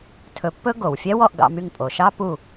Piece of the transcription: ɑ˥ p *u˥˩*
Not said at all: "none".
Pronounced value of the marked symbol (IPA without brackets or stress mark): u˥˩